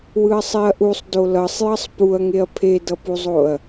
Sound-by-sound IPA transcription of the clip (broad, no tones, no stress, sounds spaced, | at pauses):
w ɯ ɐ̯ sˤ i ɐ̯ ʔ u sˤ d o l ʌ sˤ j ʌ sˤ p u ɐ̯ ŋ e ɐ̯ pʰ e d ʌ p u zˤ o ɐ̯